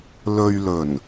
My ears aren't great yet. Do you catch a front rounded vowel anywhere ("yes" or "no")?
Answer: no